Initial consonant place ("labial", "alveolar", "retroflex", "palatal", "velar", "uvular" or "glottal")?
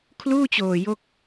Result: velar